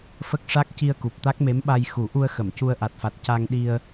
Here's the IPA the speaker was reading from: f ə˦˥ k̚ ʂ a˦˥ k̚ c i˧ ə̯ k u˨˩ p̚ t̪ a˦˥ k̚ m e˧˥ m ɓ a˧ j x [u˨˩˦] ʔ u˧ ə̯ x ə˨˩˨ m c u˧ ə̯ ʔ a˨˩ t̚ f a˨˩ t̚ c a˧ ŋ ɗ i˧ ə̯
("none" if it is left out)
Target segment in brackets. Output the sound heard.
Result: u˨˩˦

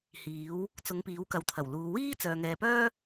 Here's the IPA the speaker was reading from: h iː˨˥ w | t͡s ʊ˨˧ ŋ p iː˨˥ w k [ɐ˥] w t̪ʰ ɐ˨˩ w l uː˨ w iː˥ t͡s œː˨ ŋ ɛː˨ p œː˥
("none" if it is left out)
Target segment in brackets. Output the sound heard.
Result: ɐ˨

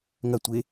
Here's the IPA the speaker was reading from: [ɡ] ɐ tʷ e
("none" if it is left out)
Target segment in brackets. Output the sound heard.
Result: ŋ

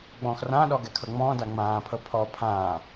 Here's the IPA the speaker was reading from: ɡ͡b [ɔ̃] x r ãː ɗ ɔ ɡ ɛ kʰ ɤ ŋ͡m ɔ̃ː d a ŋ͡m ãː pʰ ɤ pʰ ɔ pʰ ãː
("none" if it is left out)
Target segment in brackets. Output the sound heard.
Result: ɔ̃ː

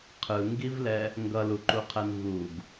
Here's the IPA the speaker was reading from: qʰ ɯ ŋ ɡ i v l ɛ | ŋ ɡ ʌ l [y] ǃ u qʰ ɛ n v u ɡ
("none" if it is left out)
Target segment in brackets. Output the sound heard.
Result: u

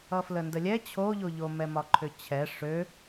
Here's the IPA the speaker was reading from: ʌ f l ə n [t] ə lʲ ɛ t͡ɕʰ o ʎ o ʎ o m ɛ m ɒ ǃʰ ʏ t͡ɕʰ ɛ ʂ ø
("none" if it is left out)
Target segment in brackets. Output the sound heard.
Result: d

